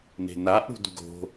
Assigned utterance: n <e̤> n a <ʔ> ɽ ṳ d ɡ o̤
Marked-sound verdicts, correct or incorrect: correct, correct

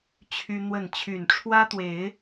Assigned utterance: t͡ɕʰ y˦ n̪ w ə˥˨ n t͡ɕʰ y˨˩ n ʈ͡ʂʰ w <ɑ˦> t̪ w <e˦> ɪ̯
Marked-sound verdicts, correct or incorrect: incorrect, incorrect

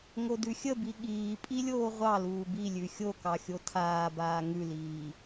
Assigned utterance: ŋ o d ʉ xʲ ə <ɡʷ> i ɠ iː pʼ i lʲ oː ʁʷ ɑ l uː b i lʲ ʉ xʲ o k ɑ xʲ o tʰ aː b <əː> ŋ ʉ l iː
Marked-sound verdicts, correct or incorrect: incorrect, incorrect

